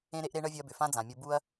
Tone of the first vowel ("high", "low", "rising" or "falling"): high